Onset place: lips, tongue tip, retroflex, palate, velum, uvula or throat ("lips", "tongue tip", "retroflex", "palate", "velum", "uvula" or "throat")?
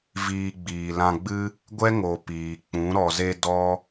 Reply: lips